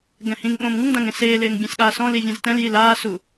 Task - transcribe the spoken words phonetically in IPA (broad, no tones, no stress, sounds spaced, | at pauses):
ɡ ɛ̃ h ĩ ŋ ɠ õː m ŋ u ŋ d ã ŋ ẽ s eː l ɪː ŋ bʲ ɛ̃ s ɠ aː s ɔ̃ l i vʲ ɛ̃ z t ɛ̃ l j i l aː s u